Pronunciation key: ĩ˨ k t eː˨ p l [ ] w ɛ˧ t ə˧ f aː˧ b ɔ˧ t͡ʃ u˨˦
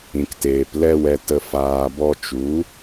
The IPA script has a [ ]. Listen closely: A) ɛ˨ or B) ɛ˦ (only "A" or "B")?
B